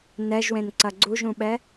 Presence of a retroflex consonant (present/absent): absent